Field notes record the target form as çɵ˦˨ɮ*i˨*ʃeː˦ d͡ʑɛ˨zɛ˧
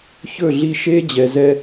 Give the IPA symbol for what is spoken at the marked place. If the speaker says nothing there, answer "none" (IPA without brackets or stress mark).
i˧